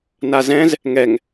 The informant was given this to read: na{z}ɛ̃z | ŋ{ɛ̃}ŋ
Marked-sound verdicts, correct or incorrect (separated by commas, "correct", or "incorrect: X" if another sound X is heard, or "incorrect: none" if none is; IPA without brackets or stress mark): correct, incorrect: ɛ